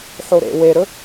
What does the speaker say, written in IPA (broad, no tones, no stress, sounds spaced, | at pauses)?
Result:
ħ o ɾ ḛ w e ɾ ɵ